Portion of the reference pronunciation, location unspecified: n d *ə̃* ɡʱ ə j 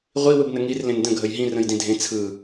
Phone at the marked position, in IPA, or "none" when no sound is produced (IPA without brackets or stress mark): ə̃